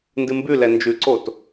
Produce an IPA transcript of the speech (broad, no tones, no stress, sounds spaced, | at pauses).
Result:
n d ɨ m b ʉ l ɛ n d͡ʒ ʉ ǀ o t